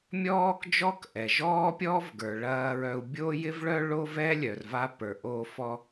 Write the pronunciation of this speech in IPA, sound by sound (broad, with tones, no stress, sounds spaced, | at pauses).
mʲ ɔː˥ k d͡ʒ ɔ˥ k ʔ ɛ˩ ʒ ɔː˥ pʲ ɔː˥ v ɡ ə˞˩ ɭ ɐː˧ ɹ œ˧ u̯ bʲ o˥ j ɪ˥ v ɭ œ˥ ɭ o˥ v ɛ˥ lʲ œ˩ r v a˧ p ə˞˩ ʔ oː˧ f ɔ˧